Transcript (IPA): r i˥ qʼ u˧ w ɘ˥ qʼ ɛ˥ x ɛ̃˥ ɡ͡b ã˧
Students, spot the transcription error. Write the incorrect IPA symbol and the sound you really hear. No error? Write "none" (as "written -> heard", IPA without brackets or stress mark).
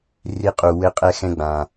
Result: none